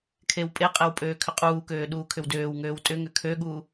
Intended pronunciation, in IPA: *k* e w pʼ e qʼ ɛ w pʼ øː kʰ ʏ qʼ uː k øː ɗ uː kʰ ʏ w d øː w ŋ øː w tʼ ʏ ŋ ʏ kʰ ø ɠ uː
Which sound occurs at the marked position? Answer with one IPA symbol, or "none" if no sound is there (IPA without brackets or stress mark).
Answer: kʰ